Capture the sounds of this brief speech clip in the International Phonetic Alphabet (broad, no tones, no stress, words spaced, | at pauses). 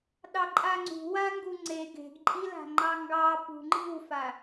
ɗɑǃʼaŋ͡ǀṳ waŋɡuŋ͡ǀe ɡe̤ɡǃʼila̤ ŋ͡ǃɑŋɡɑ pṳŋ͡ǃi̤wfa